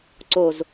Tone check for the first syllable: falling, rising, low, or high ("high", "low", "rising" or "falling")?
low